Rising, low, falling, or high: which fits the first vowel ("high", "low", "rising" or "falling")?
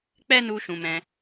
high